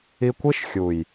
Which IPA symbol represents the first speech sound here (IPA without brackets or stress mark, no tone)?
i